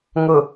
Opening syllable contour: low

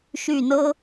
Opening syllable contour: falling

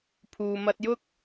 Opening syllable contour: low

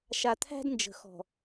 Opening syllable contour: low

